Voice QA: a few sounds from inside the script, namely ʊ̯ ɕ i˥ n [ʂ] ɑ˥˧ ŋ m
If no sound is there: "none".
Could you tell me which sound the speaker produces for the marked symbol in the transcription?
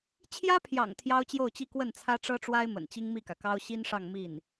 ʂ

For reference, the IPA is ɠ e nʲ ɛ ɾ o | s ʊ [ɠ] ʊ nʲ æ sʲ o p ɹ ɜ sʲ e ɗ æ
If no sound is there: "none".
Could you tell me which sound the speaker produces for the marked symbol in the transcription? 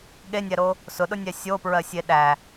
ɗ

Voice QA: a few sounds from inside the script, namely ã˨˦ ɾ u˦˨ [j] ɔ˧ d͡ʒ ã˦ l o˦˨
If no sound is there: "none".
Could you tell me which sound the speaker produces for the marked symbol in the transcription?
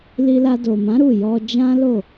j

